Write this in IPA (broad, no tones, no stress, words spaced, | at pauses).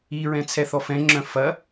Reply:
iɹɛ̃ t͡sʰɛθɔfɛ̃ŋ͡ǁœ̃ fɐ